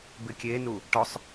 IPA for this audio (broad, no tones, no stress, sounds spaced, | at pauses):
b ɪ kʲ e n u | ʈ ɔ sˤ